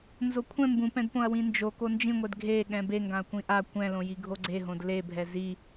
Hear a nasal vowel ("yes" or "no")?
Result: yes